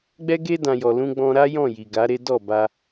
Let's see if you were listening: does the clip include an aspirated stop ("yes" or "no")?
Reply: no